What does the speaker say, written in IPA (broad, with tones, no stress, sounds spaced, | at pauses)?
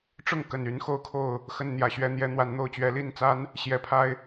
ʈ͡ʂ ʊ˥˩ ŋ k ə˨˩ n y˧˥ n x o˥˧ ʊ̯ kʰ o˥˩ ʊ̯ | x ə˥˩ n n̪ j ä˨˩ ɕ ɥ ɛ˥ n̪ j ɛ˥ n̪ w a˧˥ n n̪ o˥˩ ʊ̯ t͡ɕ ɥ ɛ˧˥ l i˥˩ n t͡s a˥ n | ɕ j ɛ˧˥ pʰ a˥ ɪ̯